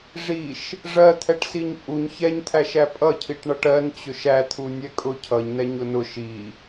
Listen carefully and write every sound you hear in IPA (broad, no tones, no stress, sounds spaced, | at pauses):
ʐ i ʃ | ʐ ɜ t̪ʰ ɛ ʈ s i ɲ pʼ u ɲ ç ɛ ɲ t̪ʰ æ ʃ æ pʼ ʌ cʰ i ʈ ɳ ʌ ʈ ɜ n t͡ɕ ʊ ʃ æ t̪ʰ u nʲ ɛ kʼ ʊ cʰ ʌ ɲ n ɛ ɲ ʊ n ʊ ʃ i